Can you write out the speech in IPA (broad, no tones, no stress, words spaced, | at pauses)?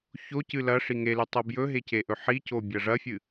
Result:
çocɨ lɐ ʂiŋelʉ tˤobjɵɦe ceʔɵħico bʲɐʐɐfʲɨ